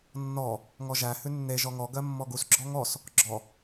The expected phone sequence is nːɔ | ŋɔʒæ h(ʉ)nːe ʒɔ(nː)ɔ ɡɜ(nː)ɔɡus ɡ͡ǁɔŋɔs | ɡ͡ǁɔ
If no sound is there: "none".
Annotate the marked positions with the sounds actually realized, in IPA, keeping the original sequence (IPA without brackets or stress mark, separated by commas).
ʉ, ŋ, mː